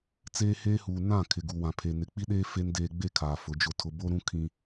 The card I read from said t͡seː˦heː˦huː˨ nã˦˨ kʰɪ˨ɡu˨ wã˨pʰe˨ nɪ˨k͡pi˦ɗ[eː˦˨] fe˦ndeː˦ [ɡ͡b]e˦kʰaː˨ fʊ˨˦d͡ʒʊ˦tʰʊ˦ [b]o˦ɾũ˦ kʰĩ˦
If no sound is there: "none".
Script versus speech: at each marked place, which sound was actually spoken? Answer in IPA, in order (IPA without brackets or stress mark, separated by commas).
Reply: eː˦, ɡ͡b, b